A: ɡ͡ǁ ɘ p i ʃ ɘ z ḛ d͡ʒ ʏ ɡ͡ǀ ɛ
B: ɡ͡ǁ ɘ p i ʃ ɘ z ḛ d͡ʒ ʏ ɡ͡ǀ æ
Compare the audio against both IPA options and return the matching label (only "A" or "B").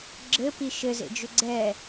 A